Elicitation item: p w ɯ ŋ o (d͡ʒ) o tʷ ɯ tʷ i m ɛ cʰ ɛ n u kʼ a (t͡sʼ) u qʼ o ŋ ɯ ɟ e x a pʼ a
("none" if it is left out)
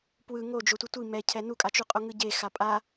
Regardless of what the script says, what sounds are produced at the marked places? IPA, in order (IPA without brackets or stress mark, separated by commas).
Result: d͡ʒ, t͡ʃ